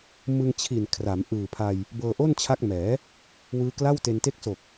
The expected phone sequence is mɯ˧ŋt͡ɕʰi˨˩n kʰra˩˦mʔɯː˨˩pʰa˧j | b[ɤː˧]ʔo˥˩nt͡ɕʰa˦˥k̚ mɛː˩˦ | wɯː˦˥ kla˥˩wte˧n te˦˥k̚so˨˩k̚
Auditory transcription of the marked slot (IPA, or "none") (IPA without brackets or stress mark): ɤː˧